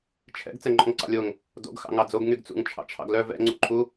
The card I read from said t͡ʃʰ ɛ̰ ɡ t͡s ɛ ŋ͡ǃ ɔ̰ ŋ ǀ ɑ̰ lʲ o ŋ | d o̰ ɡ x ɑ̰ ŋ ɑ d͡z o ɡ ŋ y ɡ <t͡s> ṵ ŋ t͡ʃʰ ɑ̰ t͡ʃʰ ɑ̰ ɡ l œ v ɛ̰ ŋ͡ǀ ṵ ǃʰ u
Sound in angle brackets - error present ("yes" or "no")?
no